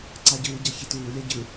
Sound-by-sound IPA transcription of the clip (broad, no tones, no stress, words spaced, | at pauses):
ǀaɟɯːɟa çituːlʲa ɟɯ